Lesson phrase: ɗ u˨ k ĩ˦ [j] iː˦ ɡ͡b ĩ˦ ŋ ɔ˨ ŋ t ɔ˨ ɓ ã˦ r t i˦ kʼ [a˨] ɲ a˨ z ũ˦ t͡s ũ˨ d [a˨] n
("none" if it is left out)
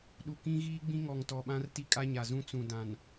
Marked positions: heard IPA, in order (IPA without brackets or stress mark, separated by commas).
ɣ, a˦, ã˨